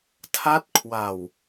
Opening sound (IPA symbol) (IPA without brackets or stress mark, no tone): tʰ